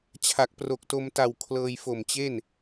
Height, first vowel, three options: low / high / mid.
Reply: low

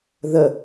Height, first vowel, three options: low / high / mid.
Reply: mid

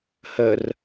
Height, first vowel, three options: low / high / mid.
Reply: mid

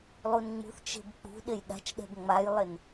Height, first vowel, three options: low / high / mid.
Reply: high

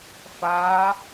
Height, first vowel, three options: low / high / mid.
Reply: low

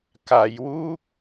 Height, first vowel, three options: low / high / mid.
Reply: low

